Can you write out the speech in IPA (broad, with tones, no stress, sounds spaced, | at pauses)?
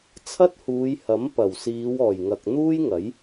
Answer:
t͡sʰ ɐ˥ t̚ h uː˨˧ j h ɐ˨˥ m p ɐ˨˩ w s iː˨˧ w ɔː˨˩ j ŋ ɐ˨ k̚ n̪ uː˥ j ŋ ɐ˨˥ j